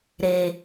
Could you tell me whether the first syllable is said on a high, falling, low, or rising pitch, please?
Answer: low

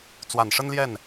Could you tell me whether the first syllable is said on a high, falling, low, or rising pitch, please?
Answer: low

